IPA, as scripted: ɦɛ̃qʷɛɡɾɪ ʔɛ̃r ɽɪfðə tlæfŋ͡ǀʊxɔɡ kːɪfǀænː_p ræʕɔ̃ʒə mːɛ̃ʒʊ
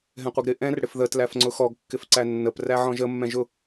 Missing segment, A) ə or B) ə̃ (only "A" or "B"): A